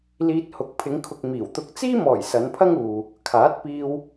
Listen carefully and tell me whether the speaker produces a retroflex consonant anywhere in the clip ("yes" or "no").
no